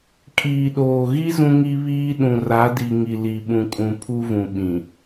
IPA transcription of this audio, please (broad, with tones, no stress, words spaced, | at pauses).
kʼiː˨ɗoː˨ɣi˦ zũ˦ŋi˦βiː˦ ɗũ˨ra˨˦di˨ ŋi˨li˨ɓũ˨kʼũ˨ pʰu˦vũ˨ɓĩ˨